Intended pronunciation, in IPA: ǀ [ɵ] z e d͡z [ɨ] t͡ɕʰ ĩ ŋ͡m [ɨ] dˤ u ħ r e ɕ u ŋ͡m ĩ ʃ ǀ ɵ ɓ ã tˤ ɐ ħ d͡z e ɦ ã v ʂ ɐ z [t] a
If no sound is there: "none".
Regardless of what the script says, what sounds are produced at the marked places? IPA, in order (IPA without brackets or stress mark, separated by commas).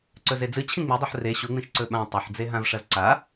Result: ɵ, ɨ, i, ǀ